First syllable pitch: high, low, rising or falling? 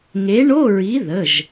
rising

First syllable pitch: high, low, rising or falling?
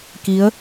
rising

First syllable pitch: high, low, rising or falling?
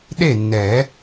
falling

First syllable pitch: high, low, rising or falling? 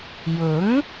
rising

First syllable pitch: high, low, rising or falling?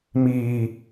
low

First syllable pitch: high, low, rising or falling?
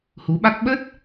rising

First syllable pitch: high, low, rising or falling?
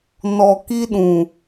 low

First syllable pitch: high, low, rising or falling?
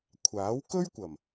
rising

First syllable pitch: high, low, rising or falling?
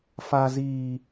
low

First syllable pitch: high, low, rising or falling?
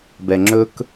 low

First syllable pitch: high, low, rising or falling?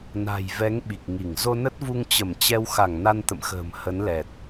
low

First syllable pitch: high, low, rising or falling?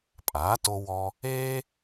rising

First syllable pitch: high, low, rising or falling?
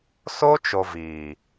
high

